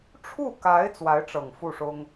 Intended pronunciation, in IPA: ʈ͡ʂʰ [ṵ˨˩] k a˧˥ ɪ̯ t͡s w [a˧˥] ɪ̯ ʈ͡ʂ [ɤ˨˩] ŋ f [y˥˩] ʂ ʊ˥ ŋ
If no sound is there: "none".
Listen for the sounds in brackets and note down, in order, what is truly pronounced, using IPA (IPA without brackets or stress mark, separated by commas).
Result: u˥˩, a˧˥, ɤ˨˩, u˥˩